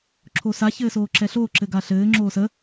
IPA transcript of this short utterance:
ǁʰ o s a ç ɘː s oː ǁ ɛ ɬ oː ǁ ɘ ɡ a ɬ ɘː ŋ͡ǁ oː s ə

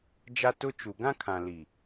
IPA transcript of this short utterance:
d͡ʒ a˦ t ʊ˦ t͡ʃ u˨ ɡ ã˦ kʰ ã˨ l i˨

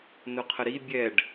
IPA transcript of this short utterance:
n ʊ qʰ ə ɾ i bʲ ɛ ɖ

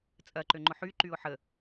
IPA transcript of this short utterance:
t͡sʼ ɐ ǃ ø ŋ͡ǃ ʊ ħ y ǃ y ʊ̯ ħ ə

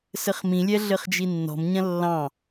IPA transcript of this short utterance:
s ɘ χ m ĩ lʲ ɛ ɮ ɘ χ d͡ʒ i nː ɔ̤ m ɲ ɐ̃ lː ɑ̃

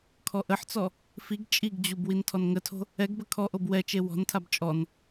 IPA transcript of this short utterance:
kʰ ɔ ʔ ə ħ t͡s ɔ | f i ɡ t͡ʃʼ i ɡ d͡ʑ u b w i n tʰ ɔ n ŋ ə tʰ o̤ | ɛ ɡ b ə kʰ ɔ ʔ o b w ɛ t͡ʃ e w ɔ̤ n tʰ a b t͡ʃʼ ɔ n

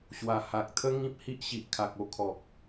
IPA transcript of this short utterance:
ɕ w a˨˩ h a˨ k̚ t̪ʰ ə˦ ŋ ĩ˦ p̚ h i˦ ʔ ɕ i˨ ʔ kʰ a˨ k̚ o˦ kʰ ɔ˨ k̚

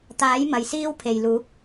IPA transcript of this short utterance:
t̪ aː˨˥ j m ɐ˨ j s iː˥ w pʰ e˨ j l uː˨˥ p̚

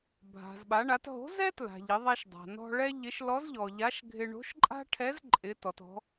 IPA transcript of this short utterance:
bʱ a̤˩ z ɓ a˩˧ ɳ a˩˧ t ɦ o̤˧˥ z ɛ˥ t l a̤˩ ʎ ɪ˩˧ ðˤ ɛ˧ ʃ dˤ a̤˩ n ɔ̤˧ ɭ ɛ˥ ʎ ɪ˧˥ ʃ l ɔ˧˥ z ʎ ɔ˩ ʎ a˧˥ ʃ ɡʱ ɪ˧ ɳ o̤˧˥ ʃ ǃʼ a̤˥ ʈʰ ɛ˧˥ z ǃʼ ɪ˧˥ t ɔ˩˧ t ɔ̤˧˥

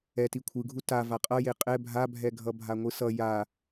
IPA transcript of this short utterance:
ɛ t i kʷʰ ɯ ɡʱ u t a v a qʼ ʌ j e qʼ ɛ bʱ a bʱ ɛ ɡʱ ʌ bʱ a ŋʷ ɯ s ʌ j a

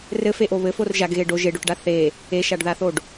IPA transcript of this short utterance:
r ɘ f e ʔ o β ɘ f o r ʒ a ɡ ɣ e ɖ o ʒ e ɖ o ʈ ɖ a θ e | e ʃ a ɖ ð a θ o ɖ

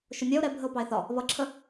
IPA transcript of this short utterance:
ʃ ʊ nʲ ɛ o̯ ɾ ɛ bʱ ə o̯ p ɑ e̯ θ ɒ | β ʌ ǁʰ ə

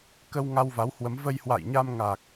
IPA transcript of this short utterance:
k ə˧ w ŋ a˧ w v a˨˦ w h w ə˨˦ m v ə˧ j h w a̰˧˨ j ɲ a˧ m ŋ a˨˩ k̚

